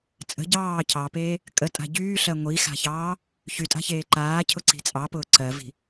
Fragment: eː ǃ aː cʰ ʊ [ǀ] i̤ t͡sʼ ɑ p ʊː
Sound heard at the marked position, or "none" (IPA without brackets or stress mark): ǀ